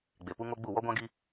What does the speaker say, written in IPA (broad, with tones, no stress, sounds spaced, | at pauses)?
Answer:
ɡ͡b e˨ p u˦ ŋ o˦ ɡ͡b u˦˨ w ɔ˦ ɡʷ ã˦ ɡ i˦